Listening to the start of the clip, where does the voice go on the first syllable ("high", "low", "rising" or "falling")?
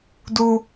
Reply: high